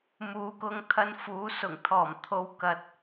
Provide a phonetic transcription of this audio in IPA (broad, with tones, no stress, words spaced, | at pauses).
muː˨˥kʊ˧ŋ t̪ʰɐ˧nfuː˨˧ sʊ˨˩ŋt̪ʰɔː˨˩m t̪ʰo˨˧wkɐ˨t̚